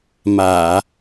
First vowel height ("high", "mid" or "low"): low